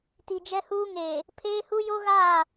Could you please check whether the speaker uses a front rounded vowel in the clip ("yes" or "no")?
no